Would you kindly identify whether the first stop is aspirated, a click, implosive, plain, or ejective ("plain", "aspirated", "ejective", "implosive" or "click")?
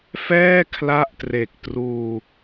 aspirated